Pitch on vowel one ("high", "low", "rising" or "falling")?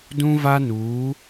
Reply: high